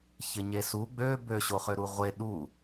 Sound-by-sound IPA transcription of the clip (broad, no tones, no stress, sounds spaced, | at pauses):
ç ɪ ɲ e s u ɡ͡b ø b ø ɕ o χ ø ɾ u ʁʷ e ɗ u